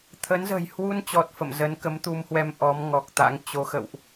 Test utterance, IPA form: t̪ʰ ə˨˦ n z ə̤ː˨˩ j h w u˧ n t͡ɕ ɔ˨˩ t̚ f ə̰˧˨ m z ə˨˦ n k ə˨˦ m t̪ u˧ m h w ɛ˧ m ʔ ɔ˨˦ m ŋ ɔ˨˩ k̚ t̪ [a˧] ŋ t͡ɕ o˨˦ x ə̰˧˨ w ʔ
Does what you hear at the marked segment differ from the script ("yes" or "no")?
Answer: yes